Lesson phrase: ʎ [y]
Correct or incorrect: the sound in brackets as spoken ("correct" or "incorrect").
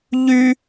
correct